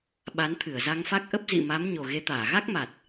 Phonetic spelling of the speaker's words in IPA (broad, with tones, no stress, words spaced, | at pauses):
ɓa˨˦nt̪ʰɨ˧˩ə̯za˧ŋfa˦˥k̚ ʔə˦˥p̚zḭ˧˨ma˨˦m ɲo˨˩ɣe˨˦t̪aː˧˩ ɣa˦˥k̚ma˨˩t̚